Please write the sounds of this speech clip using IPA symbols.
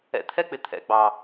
ɛ̰˨˦t̪ʰɛ˦k͡pɪ˨ t̪ʰɛ̰˨ɡ͡bɑ˨

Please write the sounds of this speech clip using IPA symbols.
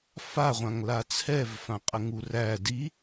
faʁʷãŋla t͡sʰɛvfãqʼə ŋuræ di

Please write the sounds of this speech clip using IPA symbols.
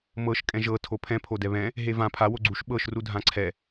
mɤʃ kʼɛ̃ʒɤ tʰopʰɛ̃ pʰodɛβɛ̃ | ɦevã pʰa woɡ͡ǀuʃ ɓɤʃ rudʱãǀʰɛ

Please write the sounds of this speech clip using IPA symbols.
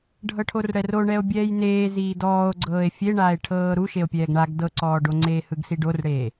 ɖʱɤʈʰorɽɛro ɳɛo̯bʲɛːjneː ziːdɔːo̯ɡ͡ǀɤːe̯ fʲeɳaːe̯ʈʰɤː ɾuʃeo̯pʲɛːɡ ɳaɡ dɤǀɔːɖoŋ͡ǀeː hɯɡsiɖorɽeː

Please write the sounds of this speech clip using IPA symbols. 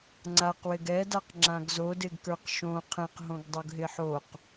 ŋ͡ǀaqwɪɡ ɛdaq ŋ͡ǁãɡzodɪɡ kə˞qʃõ qʰɛ̃qɦõɡ dˤoɡɦɪħoq

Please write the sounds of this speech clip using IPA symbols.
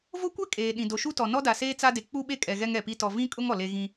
vo˦kʷɛ˦ kʼeː˨ɗĩ˨ do˨ʃu˦tɔ˨ nɔ˦da˨seː˦ t͡sa˦de˨ k͡pu˦ɓe˦ kʼɛ˨ɣɛ˦ŋ ɛ˨pi˦ tɔ˨vĩ˦kʼʊ˦ŋ ɔ˨le˦ ɣĩ˦

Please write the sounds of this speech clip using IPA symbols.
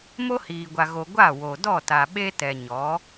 mo˦hiː˨ɡʷa˨ɣo˨ ɡʷa˦˨wo˨ dɔ˦˨ta˨ ɓe˦ tɛ˨ɲɔ˨˦

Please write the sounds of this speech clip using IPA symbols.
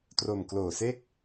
tro˨˩mkloː˨˩se˥˩k̚

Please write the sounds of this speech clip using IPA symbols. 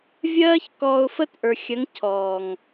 vʲɜː˦ç kɔː˧ʊ̯fə˦t ʔə˞˨xʲɜ˨˦ŋ cʰɔː˨ŋ

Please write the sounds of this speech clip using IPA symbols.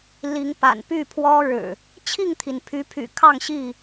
li˨˦ŋpa̰˨˩n py˥˨pʰwɔ˦ ɻɻ̩˨˩ | t͡ɕʰi˥˨ŋt̪ʰi˩npʰy˨˦pʰy̰˨˩ kʰɑ˥˨ŋɕi˥˨

